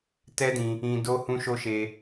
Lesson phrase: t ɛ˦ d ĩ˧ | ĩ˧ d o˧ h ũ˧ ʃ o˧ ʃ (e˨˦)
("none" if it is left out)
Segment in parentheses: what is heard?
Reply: e˧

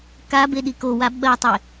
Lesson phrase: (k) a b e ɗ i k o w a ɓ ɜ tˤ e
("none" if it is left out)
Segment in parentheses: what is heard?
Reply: k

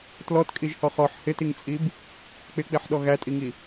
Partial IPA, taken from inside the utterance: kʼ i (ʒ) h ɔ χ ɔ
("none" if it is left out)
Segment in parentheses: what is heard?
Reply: ʒ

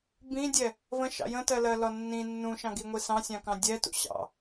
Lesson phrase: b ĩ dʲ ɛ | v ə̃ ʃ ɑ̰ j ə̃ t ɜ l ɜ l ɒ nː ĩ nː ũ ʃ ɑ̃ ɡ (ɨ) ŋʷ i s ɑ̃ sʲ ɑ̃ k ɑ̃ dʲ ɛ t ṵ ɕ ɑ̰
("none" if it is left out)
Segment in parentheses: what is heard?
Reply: i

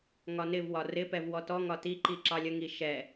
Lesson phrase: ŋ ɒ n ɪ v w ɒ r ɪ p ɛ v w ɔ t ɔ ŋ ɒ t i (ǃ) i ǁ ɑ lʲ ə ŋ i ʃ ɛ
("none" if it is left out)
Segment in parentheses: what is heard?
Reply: ǃ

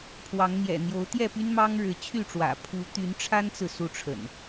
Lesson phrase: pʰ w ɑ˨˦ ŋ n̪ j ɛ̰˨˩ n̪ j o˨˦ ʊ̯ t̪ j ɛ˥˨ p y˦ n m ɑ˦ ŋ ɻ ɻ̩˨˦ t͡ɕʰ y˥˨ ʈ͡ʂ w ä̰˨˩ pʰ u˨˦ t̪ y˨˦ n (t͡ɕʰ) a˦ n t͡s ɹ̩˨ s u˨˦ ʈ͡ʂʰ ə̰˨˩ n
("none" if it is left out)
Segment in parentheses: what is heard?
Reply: ʈ͡ʂʰ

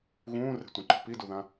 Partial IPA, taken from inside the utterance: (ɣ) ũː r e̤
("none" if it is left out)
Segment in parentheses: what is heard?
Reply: ɣ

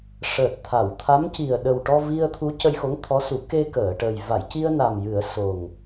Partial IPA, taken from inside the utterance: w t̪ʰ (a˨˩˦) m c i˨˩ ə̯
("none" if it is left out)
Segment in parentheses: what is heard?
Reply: a˧˥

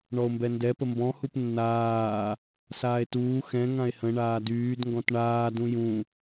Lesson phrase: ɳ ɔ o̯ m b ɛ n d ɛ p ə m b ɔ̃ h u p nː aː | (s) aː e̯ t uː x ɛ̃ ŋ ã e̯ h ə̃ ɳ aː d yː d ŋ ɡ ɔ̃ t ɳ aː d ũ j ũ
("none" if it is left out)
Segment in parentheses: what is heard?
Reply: s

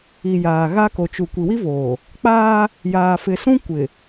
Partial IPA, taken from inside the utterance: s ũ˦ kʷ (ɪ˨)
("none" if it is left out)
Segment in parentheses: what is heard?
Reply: ɪ˨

